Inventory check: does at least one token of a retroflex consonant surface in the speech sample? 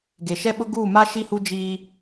no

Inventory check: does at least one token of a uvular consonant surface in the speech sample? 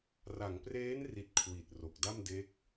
no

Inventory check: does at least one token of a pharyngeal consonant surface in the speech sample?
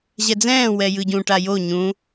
no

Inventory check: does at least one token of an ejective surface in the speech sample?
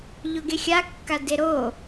no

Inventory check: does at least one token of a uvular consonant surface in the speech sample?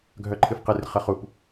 yes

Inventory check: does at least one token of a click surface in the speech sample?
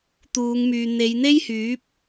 no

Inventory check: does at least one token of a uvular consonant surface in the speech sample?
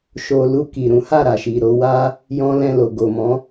no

